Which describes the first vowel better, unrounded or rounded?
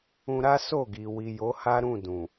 rounded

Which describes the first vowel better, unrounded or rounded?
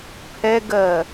unrounded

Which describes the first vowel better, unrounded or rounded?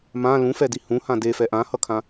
unrounded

